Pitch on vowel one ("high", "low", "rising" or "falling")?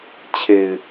low